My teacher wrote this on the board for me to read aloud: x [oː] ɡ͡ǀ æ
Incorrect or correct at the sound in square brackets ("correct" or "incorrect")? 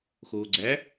correct